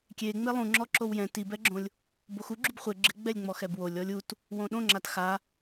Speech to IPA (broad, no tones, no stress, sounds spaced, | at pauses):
kʲ e ŋ͡m e lˠ ũ ŋ͡ǁ ɔ ǁ o w j ɛ̃ t i b ɛ ɡ͡ǁ õ lʲ | b o x u ɡ͡ǁ u b χʷ ɪ ɡ͡ǁ ɪ ɡ͡b ɛ lʲ ŋ͡m ɔ x ɛ b w o lʲ ɔ lʲ u t | w õ ɗ õ ŋ͡ǁ a t x a